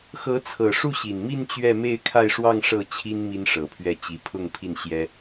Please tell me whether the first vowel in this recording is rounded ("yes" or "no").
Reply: no